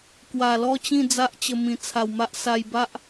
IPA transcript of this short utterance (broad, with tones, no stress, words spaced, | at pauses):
kwa˨˩lɔ˥˧t͡ɕĩ˥˧ d͡za˦ʔt͡ɕə˧ mĩ˨˩t͡sʰa˨˩wma˦ʔ sa˧jba˦ʔ